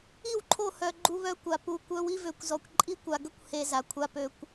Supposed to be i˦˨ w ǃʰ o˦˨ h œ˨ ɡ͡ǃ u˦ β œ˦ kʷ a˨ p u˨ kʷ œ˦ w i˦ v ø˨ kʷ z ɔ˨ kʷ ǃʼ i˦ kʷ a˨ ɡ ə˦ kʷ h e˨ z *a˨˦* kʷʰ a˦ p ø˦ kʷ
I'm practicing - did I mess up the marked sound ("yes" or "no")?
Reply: yes